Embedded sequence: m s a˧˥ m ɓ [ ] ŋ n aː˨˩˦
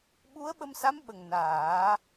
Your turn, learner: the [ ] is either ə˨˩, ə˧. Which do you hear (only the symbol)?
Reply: ə˨˩